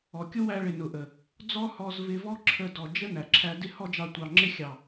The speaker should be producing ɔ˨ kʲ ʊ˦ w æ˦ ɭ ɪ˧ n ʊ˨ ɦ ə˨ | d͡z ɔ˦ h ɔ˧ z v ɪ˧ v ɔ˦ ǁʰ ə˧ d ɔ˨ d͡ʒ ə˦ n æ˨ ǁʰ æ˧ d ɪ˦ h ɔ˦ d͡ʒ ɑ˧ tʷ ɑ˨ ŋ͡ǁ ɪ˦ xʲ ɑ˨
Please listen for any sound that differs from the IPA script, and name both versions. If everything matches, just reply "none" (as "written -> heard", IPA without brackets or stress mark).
ɦ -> ʔ